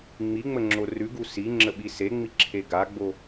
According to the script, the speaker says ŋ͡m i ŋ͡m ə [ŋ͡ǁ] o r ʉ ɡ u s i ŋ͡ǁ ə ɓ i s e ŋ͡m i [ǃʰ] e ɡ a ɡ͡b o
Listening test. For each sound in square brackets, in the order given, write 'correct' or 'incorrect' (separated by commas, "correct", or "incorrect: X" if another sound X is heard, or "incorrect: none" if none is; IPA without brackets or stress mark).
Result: correct, incorrect: ǁʰ